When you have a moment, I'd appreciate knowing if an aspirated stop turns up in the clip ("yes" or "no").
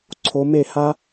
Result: yes